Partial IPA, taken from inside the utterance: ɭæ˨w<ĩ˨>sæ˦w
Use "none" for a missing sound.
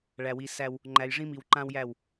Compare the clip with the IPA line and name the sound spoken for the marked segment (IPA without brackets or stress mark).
i˨